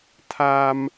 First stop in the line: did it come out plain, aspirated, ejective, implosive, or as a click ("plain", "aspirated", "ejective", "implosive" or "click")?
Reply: aspirated